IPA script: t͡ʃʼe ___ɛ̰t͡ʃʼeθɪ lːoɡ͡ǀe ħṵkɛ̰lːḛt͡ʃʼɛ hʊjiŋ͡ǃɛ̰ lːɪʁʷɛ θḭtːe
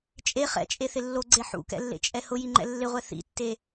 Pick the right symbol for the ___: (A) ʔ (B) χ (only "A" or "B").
B